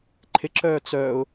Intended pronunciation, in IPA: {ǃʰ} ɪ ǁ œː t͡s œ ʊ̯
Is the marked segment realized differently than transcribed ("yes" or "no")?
no